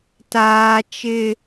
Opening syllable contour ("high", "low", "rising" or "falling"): high